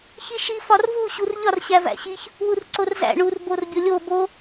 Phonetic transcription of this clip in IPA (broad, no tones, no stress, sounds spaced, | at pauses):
ç i ʃ i f ɒ r v u ɕ u r ʎ ɒ r ɕ æ v æ̰ ɕ i ç | w u r ǀ o r z æ̰ ɳ u r b o r bʲ o lʲ o b o